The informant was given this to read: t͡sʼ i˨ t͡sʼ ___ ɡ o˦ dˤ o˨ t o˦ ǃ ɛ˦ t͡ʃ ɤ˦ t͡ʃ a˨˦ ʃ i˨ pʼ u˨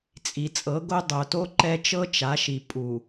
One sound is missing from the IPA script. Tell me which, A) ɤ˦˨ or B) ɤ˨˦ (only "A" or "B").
B